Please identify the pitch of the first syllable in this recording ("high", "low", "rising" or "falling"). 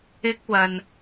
high